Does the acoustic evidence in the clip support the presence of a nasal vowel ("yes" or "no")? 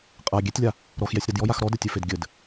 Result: no